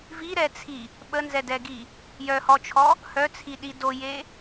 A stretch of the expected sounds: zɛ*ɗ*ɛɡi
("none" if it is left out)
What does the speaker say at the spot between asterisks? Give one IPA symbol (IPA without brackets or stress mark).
d